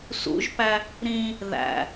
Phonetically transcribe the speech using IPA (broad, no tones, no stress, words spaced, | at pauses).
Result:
sṵʒpæ | ɾĩ | ðæ̰